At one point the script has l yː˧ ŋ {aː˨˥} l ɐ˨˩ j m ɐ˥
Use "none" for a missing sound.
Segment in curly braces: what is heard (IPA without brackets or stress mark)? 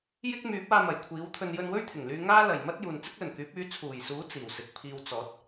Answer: aː˥